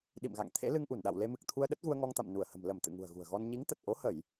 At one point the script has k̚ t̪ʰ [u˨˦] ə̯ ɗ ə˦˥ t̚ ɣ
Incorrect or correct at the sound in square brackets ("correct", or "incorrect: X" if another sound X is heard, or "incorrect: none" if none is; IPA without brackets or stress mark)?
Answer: incorrect: u˧